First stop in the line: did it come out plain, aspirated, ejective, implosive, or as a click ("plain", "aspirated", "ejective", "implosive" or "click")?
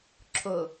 click